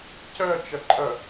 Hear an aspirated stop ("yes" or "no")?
no